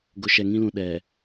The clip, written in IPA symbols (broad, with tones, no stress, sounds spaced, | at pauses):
ɡ ʊ˨ ʃ ɛ˨ ŋ ĩ˦ l ũ˨ ɗ ɛ˨